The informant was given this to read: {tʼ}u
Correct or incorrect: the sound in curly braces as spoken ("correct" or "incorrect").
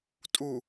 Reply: correct